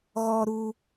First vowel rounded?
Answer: yes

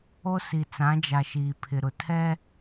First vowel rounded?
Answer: yes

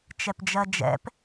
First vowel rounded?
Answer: no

